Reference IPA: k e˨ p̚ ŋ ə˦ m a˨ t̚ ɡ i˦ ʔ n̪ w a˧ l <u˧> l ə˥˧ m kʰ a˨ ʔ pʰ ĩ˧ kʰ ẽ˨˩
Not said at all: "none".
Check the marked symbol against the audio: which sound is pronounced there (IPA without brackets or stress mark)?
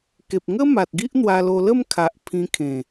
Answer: o˧